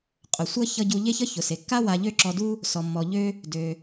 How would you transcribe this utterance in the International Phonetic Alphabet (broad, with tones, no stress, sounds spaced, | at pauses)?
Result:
qʼ ʊ˩ sʷ ʌ˥ ç ʌ˧ ɟ u˧ ʎ e˥ ç ʌ˥ ç ʊ˩ s e˩ kː a˥ w a˧ ʎ ø˥ ǁ ɔ˧ d u˥ | s ɔ˩ mː ɔ˩ ʎ ø˥ | d ø˩